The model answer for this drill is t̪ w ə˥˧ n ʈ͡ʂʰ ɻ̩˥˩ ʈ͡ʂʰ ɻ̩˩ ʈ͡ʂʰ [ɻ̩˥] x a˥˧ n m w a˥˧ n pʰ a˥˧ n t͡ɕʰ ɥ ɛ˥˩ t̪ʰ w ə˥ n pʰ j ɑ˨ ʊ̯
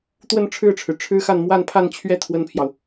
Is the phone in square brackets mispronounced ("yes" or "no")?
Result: no